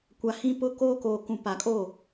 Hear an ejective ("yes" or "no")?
yes